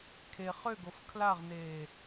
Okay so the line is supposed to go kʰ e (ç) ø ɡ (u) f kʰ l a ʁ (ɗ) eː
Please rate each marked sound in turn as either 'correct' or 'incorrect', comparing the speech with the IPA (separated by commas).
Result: incorrect, incorrect, incorrect